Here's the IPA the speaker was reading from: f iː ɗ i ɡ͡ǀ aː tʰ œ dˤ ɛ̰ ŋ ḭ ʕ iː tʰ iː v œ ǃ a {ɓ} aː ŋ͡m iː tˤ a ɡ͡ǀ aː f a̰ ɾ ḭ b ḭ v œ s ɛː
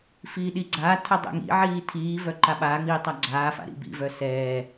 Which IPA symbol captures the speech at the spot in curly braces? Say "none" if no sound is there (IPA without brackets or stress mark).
ɓ